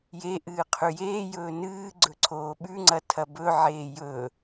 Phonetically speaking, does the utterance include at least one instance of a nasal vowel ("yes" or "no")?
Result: no